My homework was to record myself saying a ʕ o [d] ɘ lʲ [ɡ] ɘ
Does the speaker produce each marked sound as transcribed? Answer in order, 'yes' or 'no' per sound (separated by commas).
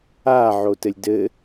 no, no